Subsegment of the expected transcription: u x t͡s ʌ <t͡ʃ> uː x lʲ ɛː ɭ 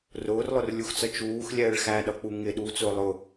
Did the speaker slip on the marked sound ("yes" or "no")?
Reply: no